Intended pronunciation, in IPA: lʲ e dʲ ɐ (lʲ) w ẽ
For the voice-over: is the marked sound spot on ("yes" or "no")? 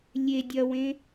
no